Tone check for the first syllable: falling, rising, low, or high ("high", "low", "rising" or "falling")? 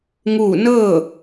falling